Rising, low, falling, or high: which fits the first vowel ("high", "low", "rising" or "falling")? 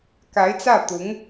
rising